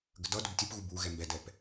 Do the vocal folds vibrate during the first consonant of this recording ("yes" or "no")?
yes